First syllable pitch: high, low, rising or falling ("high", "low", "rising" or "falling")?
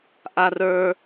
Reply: high